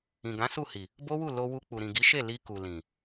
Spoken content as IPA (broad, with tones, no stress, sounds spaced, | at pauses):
ĩ˨ ɡ ã˨˦ s u˦˨ h i˨ | b o˦ w u˦˨ l o˧ w u˧ k͡p u˨ ɾ ĩ˨ ɡ i˨˦ ʃ e˦˨ l i˧ k u˨ l ĩ˨